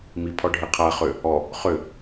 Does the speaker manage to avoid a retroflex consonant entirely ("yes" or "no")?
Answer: no